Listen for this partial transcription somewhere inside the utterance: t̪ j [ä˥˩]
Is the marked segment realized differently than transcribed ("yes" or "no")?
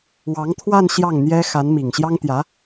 yes